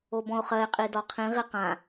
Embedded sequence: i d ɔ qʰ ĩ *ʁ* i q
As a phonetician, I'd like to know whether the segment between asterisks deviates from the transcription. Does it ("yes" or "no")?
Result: no